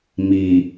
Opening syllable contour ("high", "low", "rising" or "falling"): low